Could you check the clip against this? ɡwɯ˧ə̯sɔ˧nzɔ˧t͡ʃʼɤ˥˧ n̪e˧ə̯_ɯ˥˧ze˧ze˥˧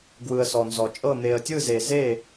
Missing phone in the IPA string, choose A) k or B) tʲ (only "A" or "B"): B